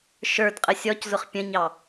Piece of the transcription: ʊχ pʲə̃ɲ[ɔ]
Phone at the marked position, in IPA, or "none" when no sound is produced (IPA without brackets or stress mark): ɑ